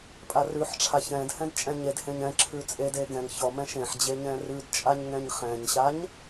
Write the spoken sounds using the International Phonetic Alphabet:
pʼ a r ʉ ħ ʈ͡ʂʰ a ç ɛ̃ d h ɛ̃ d t͡ʃʼ ɛ̃ ɲ e d h ẽ ɲ ɛ̃ ǁʰ ʉ t͡sʼ e d e ɡ ɛ̃ ŋ ç ɔ m ɛ̃ ʃ ẽ ħ d͡ʑ e ɲ ɛ̃ r ʉ d t͡ʃʼ a ɲ ŋ ɛ̃ ɲ χ ɛ̃ ɲ ɕ a ɲ

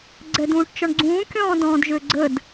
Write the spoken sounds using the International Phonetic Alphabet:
ɡ͡ǀ ɛ d ũː ʈ t͡ʃ ɔ ɳ ɡ͡ǀ ũː kʲ ɔ̃ː d ɔ̃ː d ʒ ø ɡ͡ǀ ə d

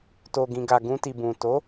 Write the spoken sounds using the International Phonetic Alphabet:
t o˨ ɡ ĩ˨ ɡ a˨ ɡ ũ˧ t i˨ b ũ˨ t o˨˦

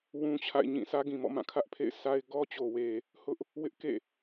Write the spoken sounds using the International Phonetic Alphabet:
w ũ˦ t͡ɕʰ a̰˦˨ ɪ̯ ɲ ĩ˦˨ s ä˦ ɡ ĩ˨ m ɔ̰˦˨ m ã˦˨ kʰ ä˦ ʔ pʰ ḛ˦˨ ɪ̯ sʰ a˦ ɪ̯ ɡ ɔ˦ t͡ɕ o˨ w e˨ | h ʊ˦ ʔ | w ɪ˦ ʔ k ḛ˦˨

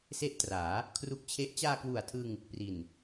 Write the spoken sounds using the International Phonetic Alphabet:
s e˥˩ ʔ t r aː˩˦ | kʰ r u˦˥ k̚ t͡ɕʰ e˦˥ ʔ t͡ɕ aː˧ k w u˨˩ a̯ tʰ ɯ˧ ŋ | p r i˨˩ n

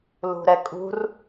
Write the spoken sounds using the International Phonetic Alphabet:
l ṳ ɾ ɛ kʼ ṳ r

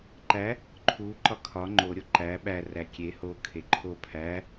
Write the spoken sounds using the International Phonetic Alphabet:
ǃ æ | ǃʰ u ǃ ɒ kʰ ɒ ŋ͡ǃ o ɾʲ o ǃ æ ɓ æ r æ kʲ e h o kʰ e ǃʰ o pʰ æ

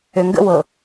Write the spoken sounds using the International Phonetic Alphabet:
ø ŋ ɡ ə̰ w ɤ

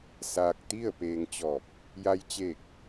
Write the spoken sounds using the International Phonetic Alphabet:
s aː˧ k̚ t̪ i˥˨ ə̯ p eː˧ ŋ t͡ɕ ɔː˧˩ p̚ | j a˧ j t͡ɕ eː˧˩ k̚

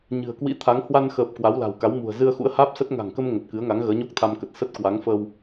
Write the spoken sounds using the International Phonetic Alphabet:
ɲ ɨ̤˨˩ ə̯ k w ḭ˧˥ t̪ʰ a˨˦ ŋ h w a˧ n x əː˨˩ p̚ k w a˨˦ w l a̤˨˩ w k a˨˦ w m ṳ˨˩ ə̯ z ɨ˧ ə̯ x ṵ˧˥ ə̯ h aː˦˥ p̚ s ə˦˥ t̚ ŋ a̤˨˩ ŋ k ə˧ m ŋ ə˨˩ t̚ k ɨ˨˦ ə̯ ŋ a˨˦ ŋ ɣ əː˨˦ ɲ o˦˥ k̚ t̪ʰ a˧ m k ə˨˩ t̚ s ə˦˥ t̚ k w a˨˦ ŋ f ə˧ w

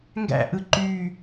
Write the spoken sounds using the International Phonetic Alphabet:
ŋ ɡ æ̰ ʔ ɯ ǃ y

